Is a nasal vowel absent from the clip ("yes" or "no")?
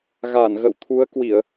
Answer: yes